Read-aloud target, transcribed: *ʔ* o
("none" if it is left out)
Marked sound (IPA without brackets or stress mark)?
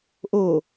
ʔ